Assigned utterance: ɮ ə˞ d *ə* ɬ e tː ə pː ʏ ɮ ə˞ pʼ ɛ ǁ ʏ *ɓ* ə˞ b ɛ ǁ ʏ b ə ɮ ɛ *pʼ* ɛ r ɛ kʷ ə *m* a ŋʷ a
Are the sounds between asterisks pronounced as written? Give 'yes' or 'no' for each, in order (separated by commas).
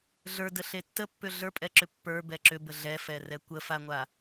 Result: yes, no, no, no